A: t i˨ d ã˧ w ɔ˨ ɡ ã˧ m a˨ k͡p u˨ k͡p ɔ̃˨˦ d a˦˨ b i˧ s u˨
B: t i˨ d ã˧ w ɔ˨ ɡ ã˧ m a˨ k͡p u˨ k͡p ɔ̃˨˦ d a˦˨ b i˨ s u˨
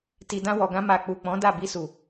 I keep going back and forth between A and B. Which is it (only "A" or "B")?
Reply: A